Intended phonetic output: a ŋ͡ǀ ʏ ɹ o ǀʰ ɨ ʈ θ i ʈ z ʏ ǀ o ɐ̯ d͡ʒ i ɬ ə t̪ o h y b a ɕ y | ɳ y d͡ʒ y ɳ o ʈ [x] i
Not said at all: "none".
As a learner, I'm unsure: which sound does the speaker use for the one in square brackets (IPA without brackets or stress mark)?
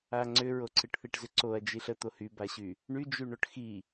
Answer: x